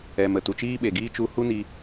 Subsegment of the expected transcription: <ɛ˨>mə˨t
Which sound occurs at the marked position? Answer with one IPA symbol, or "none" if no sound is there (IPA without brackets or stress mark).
ɛ˨